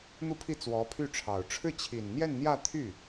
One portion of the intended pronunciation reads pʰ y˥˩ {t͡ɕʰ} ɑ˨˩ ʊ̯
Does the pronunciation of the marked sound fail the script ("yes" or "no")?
yes